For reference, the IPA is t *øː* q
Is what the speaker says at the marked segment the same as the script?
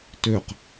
no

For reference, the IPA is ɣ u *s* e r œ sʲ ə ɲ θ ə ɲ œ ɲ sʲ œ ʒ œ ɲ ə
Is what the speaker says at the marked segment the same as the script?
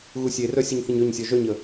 no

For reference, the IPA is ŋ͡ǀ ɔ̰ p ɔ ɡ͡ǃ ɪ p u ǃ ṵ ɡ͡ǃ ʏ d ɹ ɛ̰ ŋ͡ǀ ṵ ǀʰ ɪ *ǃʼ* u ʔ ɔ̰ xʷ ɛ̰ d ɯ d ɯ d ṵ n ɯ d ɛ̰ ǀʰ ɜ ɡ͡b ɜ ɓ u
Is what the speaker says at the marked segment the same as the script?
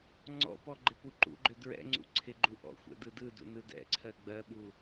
no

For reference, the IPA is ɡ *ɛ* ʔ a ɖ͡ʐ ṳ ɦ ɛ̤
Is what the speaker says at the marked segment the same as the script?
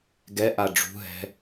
yes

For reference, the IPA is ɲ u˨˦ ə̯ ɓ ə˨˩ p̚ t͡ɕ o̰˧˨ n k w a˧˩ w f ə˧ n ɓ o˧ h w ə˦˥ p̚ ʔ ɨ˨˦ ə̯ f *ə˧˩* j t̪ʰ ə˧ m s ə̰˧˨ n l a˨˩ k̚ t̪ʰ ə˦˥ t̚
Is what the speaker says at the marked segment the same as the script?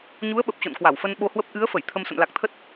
yes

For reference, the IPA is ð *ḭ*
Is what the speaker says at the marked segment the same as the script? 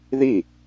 no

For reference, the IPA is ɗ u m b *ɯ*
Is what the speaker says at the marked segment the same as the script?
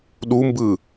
yes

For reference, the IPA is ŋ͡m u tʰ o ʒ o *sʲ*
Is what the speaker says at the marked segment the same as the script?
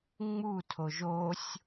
yes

